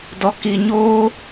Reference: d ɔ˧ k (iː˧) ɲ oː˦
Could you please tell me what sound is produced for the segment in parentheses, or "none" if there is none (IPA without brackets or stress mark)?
i˧